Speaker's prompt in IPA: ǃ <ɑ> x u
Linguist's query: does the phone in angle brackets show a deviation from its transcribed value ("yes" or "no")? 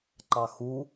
no